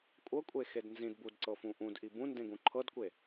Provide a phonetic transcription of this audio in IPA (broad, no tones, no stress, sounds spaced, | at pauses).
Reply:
kʷʼ ɤ kʷʼ e x e d n z ĩ d b u d ǀ ɤ f ũ ʔ ũ d ʔ i b ũ n d ẽ ɡ ũ ǃʰ ɤ d kʷ e